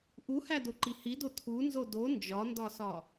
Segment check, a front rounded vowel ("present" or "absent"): absent